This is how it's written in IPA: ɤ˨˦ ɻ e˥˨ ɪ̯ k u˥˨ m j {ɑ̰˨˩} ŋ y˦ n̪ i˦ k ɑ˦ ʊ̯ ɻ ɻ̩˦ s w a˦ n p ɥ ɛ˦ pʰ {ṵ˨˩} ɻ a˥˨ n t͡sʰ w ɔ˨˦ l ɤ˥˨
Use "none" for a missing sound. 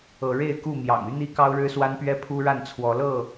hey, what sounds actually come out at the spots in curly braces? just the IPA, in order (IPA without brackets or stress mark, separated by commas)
ɑ̰˨˩, u˦